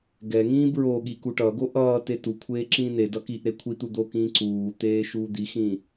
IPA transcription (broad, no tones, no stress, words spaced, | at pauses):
ɡɛŋĩː bɹoɠi kuʈʌːɡo ʔʌː tetukʷʰeː ǁĩːnedʌ kiʔɾe kʷʰit̪u d̪okĩː ǀuːt̪eː ʃuːd̪ixĩ